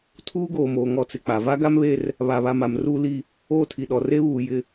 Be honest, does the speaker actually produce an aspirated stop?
yes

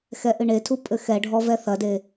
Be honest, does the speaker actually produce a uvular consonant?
no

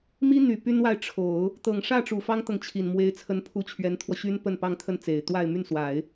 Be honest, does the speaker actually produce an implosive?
no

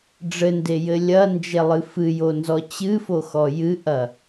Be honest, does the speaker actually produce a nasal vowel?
no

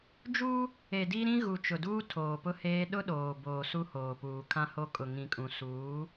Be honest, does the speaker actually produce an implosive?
yes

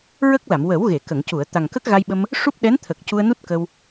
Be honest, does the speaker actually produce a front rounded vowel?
no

